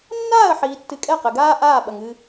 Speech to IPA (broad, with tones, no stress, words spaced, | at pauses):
nːaː˦˨ə̯ħiː˨tːɨ˨ kʼɛ˦˨qɘ˨ɡaː˦ ʔaː˦˨ɓɐ˨ŋɨ˦